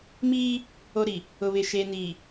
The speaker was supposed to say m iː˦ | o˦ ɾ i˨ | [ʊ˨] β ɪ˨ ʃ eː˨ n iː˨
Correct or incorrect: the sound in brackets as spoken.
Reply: correct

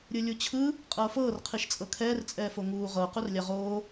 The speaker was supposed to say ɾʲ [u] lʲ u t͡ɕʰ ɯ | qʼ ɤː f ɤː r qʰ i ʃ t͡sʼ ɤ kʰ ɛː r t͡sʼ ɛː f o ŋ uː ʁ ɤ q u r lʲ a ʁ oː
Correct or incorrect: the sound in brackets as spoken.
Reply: incorrect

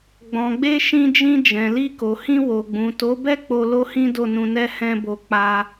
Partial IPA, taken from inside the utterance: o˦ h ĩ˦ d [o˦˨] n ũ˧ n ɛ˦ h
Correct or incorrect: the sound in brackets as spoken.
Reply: correct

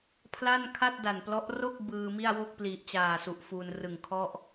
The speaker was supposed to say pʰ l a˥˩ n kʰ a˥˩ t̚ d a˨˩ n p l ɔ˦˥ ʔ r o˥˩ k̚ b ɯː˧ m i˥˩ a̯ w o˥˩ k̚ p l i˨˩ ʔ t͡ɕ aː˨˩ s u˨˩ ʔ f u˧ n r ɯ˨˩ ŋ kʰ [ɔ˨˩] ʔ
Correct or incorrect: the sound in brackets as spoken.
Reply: incorrect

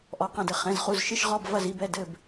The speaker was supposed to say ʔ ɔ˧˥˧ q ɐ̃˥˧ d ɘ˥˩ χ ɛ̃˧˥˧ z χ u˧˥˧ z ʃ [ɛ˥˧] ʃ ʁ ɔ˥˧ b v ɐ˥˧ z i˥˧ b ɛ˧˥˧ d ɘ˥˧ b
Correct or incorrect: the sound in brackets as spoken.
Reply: incorrect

